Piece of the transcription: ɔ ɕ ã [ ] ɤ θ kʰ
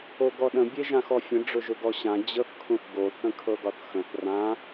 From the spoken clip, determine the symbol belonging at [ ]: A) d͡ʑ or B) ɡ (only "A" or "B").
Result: A